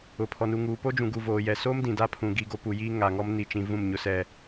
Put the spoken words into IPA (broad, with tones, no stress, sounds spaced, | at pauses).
ʊ˨ pʰ ɔ˨ n u˨ ŋ uː˨ p o˦ d͡ʒ ũ˨ ɡ u˨ v oː˨ j ɛ˨ s oː˦ m d ĩ˨ d a˦ pʰ ũ˨ ɡ i˦ ɡ o˦ p u˨ j iː˦ ŋ a˨ ŋ ɔ˦ m n i˨ t͡ʃ ĩ˨ v ũ˦˨ m ɲ ʊ˦ s ɛ˦